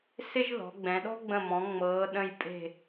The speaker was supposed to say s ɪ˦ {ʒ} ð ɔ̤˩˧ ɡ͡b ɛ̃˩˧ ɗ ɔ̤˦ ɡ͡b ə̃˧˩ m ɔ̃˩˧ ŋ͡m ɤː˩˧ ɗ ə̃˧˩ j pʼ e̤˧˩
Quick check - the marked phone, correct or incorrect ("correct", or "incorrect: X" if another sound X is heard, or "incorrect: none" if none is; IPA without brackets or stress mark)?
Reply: correct